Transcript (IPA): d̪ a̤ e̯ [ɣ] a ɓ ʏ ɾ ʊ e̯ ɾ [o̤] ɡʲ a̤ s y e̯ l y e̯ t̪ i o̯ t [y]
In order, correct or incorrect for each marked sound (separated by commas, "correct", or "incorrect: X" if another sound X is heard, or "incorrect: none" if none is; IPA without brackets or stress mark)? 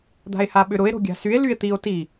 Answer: incorrect: h, correct, incorrect: i